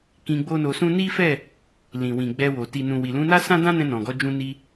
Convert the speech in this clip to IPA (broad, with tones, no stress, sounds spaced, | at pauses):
k ĩ˧ ɡ͡b o˦ n o˧ s ũ˦ n i˦ f ɛ˦˨ | l ĩ˨ w ĩ˨ ɡ͡b ɛ˧ w o˨ t i˨ n ũ˨ w i˨ l ũ˨˦ n a˦ s ã˦ d ã˦ n ɛ̃˧ n ɔ̃˨ ɡ ɔ˨˦ d͡ʒ ũ˦ n i˦